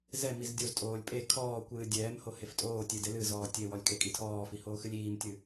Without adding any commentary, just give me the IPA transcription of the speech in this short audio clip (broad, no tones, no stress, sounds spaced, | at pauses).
z ɛ m i z dʲ o z tʼ oː lʲ pʼ e kʰ ɔː kʷ ɨː dʲ ɛː m h o h e f tʼ oː tʲ e d e l ɨ z ɔː tʲ e w ɔ lʲ kʼ e kʼ i tʰ ɔː f i h oː x ɨ lʲ iː m tʲ ɨ